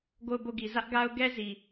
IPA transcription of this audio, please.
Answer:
ɡ o˦˨ ʊ̯ b o˦˨ ɡ i˨ z ä˦ ʔ ɡ a˦ ʊ̯ ɡ ɛ˦ z i˨

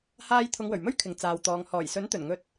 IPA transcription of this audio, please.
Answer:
h aː˧ j t̪ʰ ʊ˨˧ ŋ w ɵ˨˩ ɥ m ɵ˥ ɥ kʰ ɪ˨ ŋ t͡s aː˨˧ w t̪ ɔː˨˧ ŋ h ɔː˨˩ j s ɵ˨˥ n t̪ ɵ˨˩ n ŋ ɵ˧ t̚

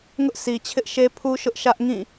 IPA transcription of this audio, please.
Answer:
ŋ ʊ˦ ʔ sʰ i˨ t͡ɕʰ ɪ˦ ʔ ʃ e˦ pʰ u˦ ʃ ʊ˦ ʔ ʃ ä˦ ʔ ŋ ĩ˦˨

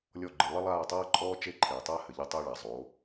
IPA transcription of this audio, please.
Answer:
lʲ ɔ˦˨ ɡ͡ǃ ɨ˨ lˠ ɐ˦ lˠ aː˦˨ tˤ aː˦ ǃʼ ɔː˦ t͡ʃ e˦ ǃʰ eː˨ tˤ aː˦ h ɘ˨ ʎ ɐ˦ tˤ ɐː˦ ɭ a˨ zˤ o˨˦

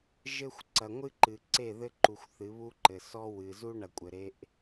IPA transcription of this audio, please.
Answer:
ʒ ɘ˦ xʷ ǀ ɐ˨ ŋʷ ɨ˦ ǃ ɨ˨ ǀ e˦˨ ð ɘ˦ ǃ u˨ xʷ θ ɨ˨˦ β u˦ ǃ ɘ˨ s ɔ˦ w ɨ˨ z u˦ ɳ ɐ˨ kʷʼ ɘ˨ ɾ e˦ ʔ

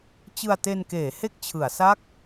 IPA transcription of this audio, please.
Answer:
t͡ɕ ɯ˧ a̯ t e˧ n k eː˩˦ h e˥˩ k̚ t͡ɕʰ ɯ˩˦ a̯ s a˥˩ k̚

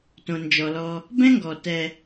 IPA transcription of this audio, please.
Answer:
t õ˨ n d͡ʒ ɔ˨ l ɔ˧ | b ɛ̃˦ ŋ ɡ ɔ˨ t ɛ˧

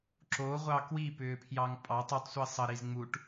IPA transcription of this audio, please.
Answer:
ǁ o ʁʷ ɑ k w i p ʏː pʰ j ɑ ŋ pʼ ɑ tˤ ə tˤ sʷ i sˤ ə ɾ i z ŋ͡m u ʈ

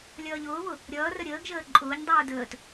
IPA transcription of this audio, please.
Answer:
lʲ ʌː ʎ ʊː β ʊ | ɾʲ ʌː r ə ɾʲ əː ɡ ʒ əː ǃʼ ʊː ɲ dˤ uː d əː t

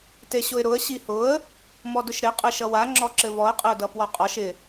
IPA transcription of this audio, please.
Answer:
t e ɕ ʊ ɪ̯ ɾ ʊ ə̯ ɕ i h ʊ ə̯ | m ɔ d ʊ ʃ ɾ ɪ qʼ ɘ ʃ ʌ w a ŋ͡ǁ ɔ ǁ ɘ v ɔ ə̯ qʼ ɘ ʊ̯ d ʌ p w ɔ qʼ ɔ ʃ ɪ

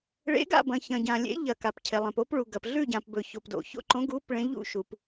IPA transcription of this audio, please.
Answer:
ɭ ḛ˧˥ ɡ a̰˥˧ b ɐ̃˨ ç ɐ̃˨ ɟ ã˨ lʲ ḛ˧˥ ʎ ɐ˨ k a˨ p cʰ e˨ lˠ ẽ˨ p o˧˥ p ɭ u˨ ɡ ɐ˨ p ɮ ʉ˥˧ ɟ ã˨ p b ɵ˨ ç o˨ p d o̰˨ ç o̰˥˧ ǃ õ˧˥ ɡ u˧˥ p ɭ ẽ˧˥ ʎ ṵ˥˧ ʃ u˨ p

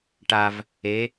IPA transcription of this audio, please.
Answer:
ʈ a v | e

